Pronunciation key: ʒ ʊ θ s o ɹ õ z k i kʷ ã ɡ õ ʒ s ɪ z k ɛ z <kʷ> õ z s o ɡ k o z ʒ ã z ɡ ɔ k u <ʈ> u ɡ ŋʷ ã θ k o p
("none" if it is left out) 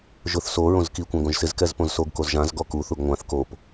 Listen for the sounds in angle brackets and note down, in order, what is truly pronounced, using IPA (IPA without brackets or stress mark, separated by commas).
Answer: p, θ